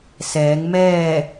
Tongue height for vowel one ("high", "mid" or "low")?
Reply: mid